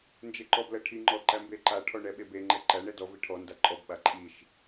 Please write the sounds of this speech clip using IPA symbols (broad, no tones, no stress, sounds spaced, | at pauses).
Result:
n d͡ʒ e ǃ ɔ b l ɜ ʈʰ i ŋ͡ǃ ɔ ǃ æ m b e ǃ a ʈʰ ɔ ɳ ɛ ɓ e b e ŋ͡ǃ ɛ ǃ æ ɳ ɛ d ɔ v i ʈʰ ɔ n d a ǃʼ ɔ b ɓ a ǃʼ i ʃ